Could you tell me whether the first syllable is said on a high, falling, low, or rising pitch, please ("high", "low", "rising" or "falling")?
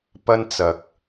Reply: high